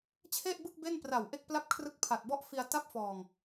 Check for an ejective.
absent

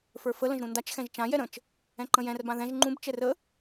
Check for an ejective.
absent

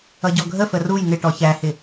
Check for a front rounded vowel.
absent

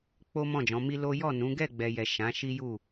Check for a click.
absent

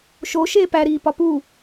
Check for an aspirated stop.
absent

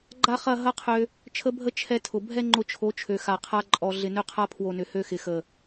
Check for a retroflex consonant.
absent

